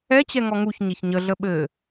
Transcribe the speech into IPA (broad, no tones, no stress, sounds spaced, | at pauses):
ɛ t͡ɕ ɛ ŋ ɔ ŋ u ç ɲ e ç ɲ ə ɮ ə ɓ ɘ